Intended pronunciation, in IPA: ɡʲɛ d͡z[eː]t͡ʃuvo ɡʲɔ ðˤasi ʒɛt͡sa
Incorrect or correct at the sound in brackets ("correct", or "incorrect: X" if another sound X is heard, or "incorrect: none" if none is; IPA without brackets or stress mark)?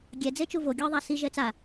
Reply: incorrect: e